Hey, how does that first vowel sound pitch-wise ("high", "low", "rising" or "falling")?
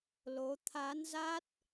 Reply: rising